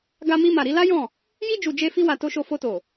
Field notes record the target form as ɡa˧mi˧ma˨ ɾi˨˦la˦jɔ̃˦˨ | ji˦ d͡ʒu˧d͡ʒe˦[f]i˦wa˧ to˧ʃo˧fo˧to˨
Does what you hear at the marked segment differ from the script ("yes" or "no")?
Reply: no